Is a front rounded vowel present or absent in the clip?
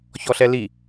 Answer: absent